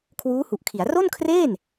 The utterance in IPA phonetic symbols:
kʰwuː˦˥hu˨˩ʔkʰi˩˦a̯ ro˥˩nkʰreː˥˩n

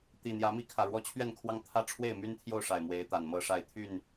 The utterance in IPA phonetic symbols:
t̪i˨˩ n̪jä˨˦mi˥˨kʰä˨˩ɻwɔ˦ t͡ɕʰɥɛ˥˨nkʰwɑ˦ŋ t̪ʰä˦ʈ͡ʂʰwe˥˨ɪ̯my˦nt̪ʰjo˥˨ʊ̯ ʂa˨˩ɪ̯mwe˨˦ɪ̯ t̪a˨˩nmɤ˥˨ʂa˥˨ɪ̯ t̪ʰy˥˨n

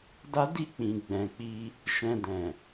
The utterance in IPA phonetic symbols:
da˦ di˦˨k͡pĩ˨ ɡ͡bɛ̃˨k͡pi˧ | ʃɛ̃˧ dɛ̃˨

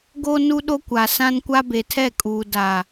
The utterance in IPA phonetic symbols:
ɡo˦ nu˦ɗo˦kʷa˨sã˦n kʷa˦be˨tʰɛ˦˨kʼuː˨ daː˨

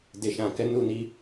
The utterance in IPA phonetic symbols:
de˨ʃã˨kɛ˨˦ nu˦˨ni˧

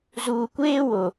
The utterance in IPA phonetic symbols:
zuː˨kʷeː˦wo˨

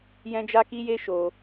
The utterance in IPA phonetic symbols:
jɛ̃˦d͡ʒa˦ki˦je˦ ʃo˧

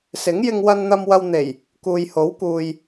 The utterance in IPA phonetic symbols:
sɪ˨˥ŋ jɪ˧ŋwɐ˧nn̪ɐ˧m wɐ˧w n̪e˨˩j | kuː˨jho˨˥wkuː˨j

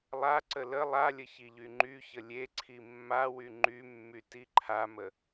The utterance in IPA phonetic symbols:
lˠaǀə lə lˠalʲə çiʎyŋ͡ǃyçə lʲeǀʰi mːawy ŋ͡ǃymːy tiǃʰamə

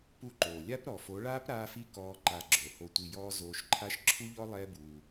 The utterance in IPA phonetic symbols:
pu˦˨ǃoː˨ lʲa˦pɾɔ˨ fo˨˦ɭaː˦p ɾaː˧fi˧ kɔː˧ ǃa˧ɡ͡ǁo˨ ho˨tʷi˨jɔː˧ zoː˧ʃǃʰa˦ʃ ǁʰu˦ʎɔ˦ lˠɛː˦buː˧

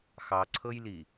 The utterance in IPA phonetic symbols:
xɑǀʰɤjli

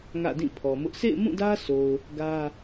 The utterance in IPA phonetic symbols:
ŋä̰˦˨dĩ˦˨pʰɔ˨mʊ˦ʔ sʰḛ˦˨ɪ̯mũ˦˨dä˦ so˨ʊ̯ | ɡä˦

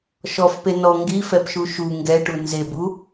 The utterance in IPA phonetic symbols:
ʃɔfpe nɔ ŋɡifɛpʃu ʃu ŋɡɛʈu nzebu

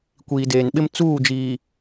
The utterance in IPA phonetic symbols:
kʷiː˨deː˨nɓɪ˦m t͡suː˦˨d͡ʒiː˨

